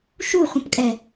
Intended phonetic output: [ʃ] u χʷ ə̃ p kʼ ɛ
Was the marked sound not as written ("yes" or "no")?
no